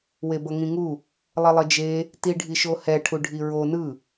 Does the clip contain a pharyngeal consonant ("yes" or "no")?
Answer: no